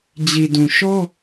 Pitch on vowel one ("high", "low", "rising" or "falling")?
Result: low